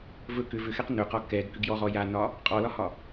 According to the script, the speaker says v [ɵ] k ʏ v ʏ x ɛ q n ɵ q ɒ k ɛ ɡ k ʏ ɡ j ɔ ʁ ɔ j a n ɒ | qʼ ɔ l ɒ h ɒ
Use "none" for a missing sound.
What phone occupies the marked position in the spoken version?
ɵ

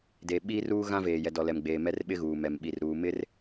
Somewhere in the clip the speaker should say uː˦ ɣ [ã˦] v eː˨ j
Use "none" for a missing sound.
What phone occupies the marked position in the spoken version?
ã˦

